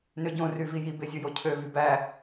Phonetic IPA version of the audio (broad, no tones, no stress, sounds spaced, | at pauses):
n ø ɟ õ r y v i j i b e zʲ ɯ j o cʰ ø v y b æ